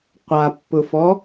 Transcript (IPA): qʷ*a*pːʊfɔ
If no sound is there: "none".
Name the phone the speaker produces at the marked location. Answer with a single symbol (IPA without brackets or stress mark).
a